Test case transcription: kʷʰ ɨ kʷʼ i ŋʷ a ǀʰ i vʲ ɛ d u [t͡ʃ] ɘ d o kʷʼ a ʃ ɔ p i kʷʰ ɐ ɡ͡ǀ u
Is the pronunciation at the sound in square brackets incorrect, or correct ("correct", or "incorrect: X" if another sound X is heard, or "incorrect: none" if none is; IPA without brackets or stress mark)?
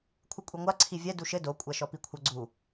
incorrect: ʃ